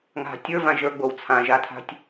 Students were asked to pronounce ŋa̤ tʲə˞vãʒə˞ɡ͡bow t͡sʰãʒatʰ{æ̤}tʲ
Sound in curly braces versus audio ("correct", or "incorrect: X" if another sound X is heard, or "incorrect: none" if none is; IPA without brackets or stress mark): incorrect: a̤